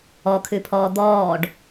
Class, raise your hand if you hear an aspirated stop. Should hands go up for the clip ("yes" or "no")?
yes